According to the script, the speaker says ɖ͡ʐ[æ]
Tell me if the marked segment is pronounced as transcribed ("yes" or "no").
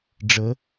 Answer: no